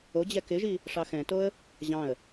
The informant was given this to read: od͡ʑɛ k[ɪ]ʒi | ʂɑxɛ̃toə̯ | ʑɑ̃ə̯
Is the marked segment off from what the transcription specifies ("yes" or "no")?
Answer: no